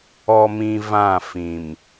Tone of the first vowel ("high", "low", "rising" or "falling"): low